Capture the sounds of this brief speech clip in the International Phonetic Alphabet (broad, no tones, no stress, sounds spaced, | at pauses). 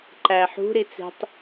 ǃ æ ħ ṳ ɾ i t͡s e̤ tˤ